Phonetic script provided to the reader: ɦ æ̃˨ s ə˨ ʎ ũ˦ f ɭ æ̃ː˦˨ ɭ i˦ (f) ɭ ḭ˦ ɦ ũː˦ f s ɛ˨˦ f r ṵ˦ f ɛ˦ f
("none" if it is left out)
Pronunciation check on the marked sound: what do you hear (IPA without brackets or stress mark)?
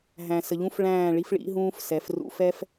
f